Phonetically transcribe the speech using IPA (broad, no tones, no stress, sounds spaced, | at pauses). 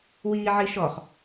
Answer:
w iː ʕ i ʃ ɔ χ